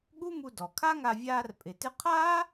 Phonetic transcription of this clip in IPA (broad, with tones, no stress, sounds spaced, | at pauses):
ɠ u˥ m u˧ d ɔ˩ kʰ a˥ ŋ a˧ vʲ aː˧ r pʼ ɪ˩ t ɪ˧ qʰ aː˥